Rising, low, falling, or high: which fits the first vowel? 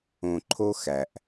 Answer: low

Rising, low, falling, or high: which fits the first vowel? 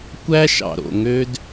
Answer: high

